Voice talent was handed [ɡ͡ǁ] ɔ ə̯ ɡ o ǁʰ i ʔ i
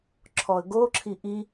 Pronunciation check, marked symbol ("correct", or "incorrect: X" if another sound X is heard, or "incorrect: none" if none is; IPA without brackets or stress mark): incorrect: ǁʰ